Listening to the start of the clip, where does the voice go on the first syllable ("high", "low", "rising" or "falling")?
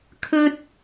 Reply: high